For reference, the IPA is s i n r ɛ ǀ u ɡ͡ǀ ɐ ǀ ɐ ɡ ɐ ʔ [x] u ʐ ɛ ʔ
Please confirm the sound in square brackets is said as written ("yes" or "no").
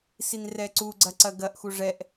yes